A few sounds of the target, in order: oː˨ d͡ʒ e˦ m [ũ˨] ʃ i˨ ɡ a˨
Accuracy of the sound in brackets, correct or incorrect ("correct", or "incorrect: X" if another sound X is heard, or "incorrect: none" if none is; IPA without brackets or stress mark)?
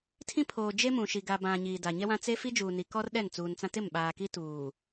correct